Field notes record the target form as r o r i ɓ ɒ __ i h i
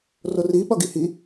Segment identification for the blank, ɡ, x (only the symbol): ɡ